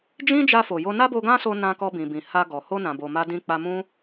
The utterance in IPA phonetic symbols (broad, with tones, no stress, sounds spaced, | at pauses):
d͡ʒ ĩ˦ d͡ʒ a˧ f o˨ j o˧ n a˦ b o˧ ɡ ã˦ s o˧ n ã˧ k ɔ˧ b ĩ˨ b ĩ˨ h a˧ ɡ ɔ˨ h o˧ n ã˨ b o˨ m a˧ d ĩ˧ k͡p a˧ m ũ˦